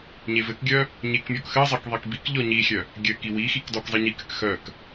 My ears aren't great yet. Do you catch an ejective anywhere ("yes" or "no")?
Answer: no